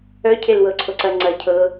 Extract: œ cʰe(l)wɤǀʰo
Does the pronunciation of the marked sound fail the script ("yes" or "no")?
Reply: no